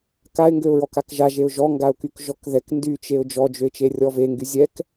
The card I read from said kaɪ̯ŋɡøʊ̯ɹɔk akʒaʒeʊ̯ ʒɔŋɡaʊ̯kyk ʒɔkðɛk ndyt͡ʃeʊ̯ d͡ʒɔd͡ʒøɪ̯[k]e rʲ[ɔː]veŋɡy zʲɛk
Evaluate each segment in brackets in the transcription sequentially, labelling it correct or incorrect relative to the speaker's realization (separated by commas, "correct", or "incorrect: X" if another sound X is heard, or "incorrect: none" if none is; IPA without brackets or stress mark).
incorrect: t͡ʃ, incorrect: ɔ